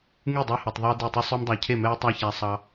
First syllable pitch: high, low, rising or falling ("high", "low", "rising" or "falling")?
falling